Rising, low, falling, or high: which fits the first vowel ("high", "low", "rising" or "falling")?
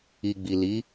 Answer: low